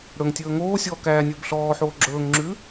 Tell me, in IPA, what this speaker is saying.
ɽ ɵ ŋ tʲ ɵː ŋ oː sʲ ɔː k æː nʲ ɵː b ɬ ɔː ħ oː ɡ͡ǁ ɵː ŋ ŋ͡ǁ ʉː

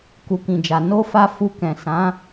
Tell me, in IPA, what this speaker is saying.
k u˨ k ĩ˨ d͡ʒ a˨ n o˧ f a˧ f u˧ k ɛ̃˨ s ã˨˦

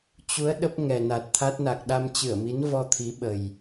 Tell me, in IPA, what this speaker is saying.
t͡ɕ u˨˦ ə̯ ɗ ə˦˥ p̚ ŋ ɛ˨˩ n a˨˩ t̚ t̪ʰ a˦˥ t̚ n a˨˩ k̚ ɗ a˧ m t͡ɕ ɨ˧˩ ə̯ m i˨˦ n v ɔ˧ t̪ʰ i˨˦ ɓ ə˨˩ j

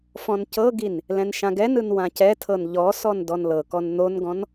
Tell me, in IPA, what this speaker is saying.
f ɔ̃ n c ɤ ɡ i n | l ɛ̃ n ʃ ã ɡ ɛ n ɯ n w ã c ɛ tʰ ɤ n ʎ ɔ s ɔ n d ɔ n l ɤ k ɔ n n̪ o n ɡ ɔ̃ n

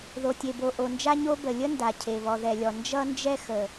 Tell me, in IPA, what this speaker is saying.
ð o˩ tʲ e˩ b o˩ ʔ o˩ n d͡ʒ a˥ ɲ o˥ b ə˩ lʲ ə˥ n d a˩ cʰ e˩ β ɔ˩ ð ɛ˩ lʲ ɔ˩ n d͡ʒ ʌ˥ n d͡ʒ ɛ˥ x ə˩

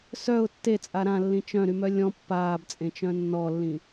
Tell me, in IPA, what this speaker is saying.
s œ ʊ̯ tː e t͡sʼ a ɾ ã lː ĩ t͡ʃ œ̃ ɾ y m œ lʲ ɔ̃ pː aː b t͡sʼ ẽ t͡ʃ œ̃ nː ɔ lː ĩ

